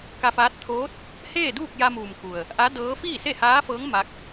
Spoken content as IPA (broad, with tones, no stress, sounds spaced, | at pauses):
k a˧ f aː˧˥ t̚ t̪ʰ oː˧˥ t̚ | h eː˥˨ d uː˥˨ k̚ j a˧ m uː˩ m k u˩ ə̯ | ʔ a˧˥ d ɤː˧˥ f iː˥˨ s e˥˨ h aː˧˥ f ɤː˧˥ ŋ m a˧˥ k̚